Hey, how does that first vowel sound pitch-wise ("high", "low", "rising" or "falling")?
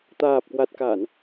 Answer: low